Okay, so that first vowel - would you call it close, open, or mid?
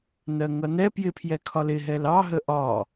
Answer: mid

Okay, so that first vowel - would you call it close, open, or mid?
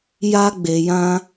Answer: open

